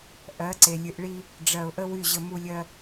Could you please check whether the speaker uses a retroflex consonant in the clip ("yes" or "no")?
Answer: yes